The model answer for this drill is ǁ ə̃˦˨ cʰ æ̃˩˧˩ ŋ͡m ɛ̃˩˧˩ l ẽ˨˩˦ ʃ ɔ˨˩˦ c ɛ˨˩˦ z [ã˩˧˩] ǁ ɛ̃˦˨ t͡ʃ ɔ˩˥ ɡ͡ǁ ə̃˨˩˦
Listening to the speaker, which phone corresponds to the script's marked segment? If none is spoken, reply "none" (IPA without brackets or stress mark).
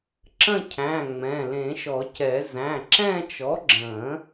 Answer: æ̃˩˧˩